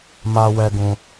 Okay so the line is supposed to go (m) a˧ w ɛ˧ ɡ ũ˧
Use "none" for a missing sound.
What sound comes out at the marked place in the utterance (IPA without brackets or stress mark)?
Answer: m